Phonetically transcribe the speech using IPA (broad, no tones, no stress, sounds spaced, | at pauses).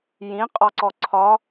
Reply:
j ĩ qʼ ɒ ǀ ɔ ǀʰ ɒ